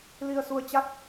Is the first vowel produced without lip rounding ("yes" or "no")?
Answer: yes